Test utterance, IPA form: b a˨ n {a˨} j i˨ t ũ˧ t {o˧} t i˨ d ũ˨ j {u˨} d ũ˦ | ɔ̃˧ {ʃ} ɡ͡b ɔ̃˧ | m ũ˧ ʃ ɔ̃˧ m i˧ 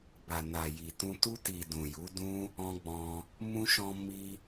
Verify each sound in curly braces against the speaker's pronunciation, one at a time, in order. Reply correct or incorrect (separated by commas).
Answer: correct, incorrect, incorrect, incorrect